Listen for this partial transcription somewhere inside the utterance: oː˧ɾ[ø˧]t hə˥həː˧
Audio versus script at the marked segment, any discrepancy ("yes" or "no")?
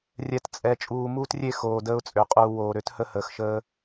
yes